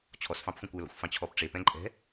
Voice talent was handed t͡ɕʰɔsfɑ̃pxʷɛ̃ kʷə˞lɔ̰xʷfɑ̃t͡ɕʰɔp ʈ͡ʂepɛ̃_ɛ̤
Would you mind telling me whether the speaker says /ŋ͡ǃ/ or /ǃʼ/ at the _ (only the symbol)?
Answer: ǃʼ